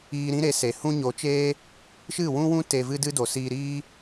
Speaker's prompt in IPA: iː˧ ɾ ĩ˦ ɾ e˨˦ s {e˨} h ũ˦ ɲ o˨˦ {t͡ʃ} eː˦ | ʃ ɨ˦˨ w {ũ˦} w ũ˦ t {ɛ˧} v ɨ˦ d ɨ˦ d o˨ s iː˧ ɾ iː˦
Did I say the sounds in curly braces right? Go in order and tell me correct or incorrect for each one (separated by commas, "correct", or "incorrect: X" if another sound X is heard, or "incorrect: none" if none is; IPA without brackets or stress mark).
correct, correct, correct, incorrect: e˧